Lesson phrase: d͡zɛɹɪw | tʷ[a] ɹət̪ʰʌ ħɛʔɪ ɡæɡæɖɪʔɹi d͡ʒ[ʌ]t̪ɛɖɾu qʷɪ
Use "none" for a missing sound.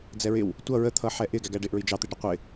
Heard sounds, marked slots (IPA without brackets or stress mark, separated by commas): ʌ, ɑ